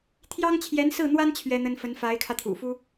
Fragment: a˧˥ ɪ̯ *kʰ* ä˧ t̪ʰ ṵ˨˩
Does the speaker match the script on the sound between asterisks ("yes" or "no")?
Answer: yes